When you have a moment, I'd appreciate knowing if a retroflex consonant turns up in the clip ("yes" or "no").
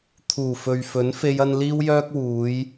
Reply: no